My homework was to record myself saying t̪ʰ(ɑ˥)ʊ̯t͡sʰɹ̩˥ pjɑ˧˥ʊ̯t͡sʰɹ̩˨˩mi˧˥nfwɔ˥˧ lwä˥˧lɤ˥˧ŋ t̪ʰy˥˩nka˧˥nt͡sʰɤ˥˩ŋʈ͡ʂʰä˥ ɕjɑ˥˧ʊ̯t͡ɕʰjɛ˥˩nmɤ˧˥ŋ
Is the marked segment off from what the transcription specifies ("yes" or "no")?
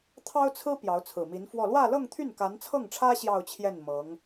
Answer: no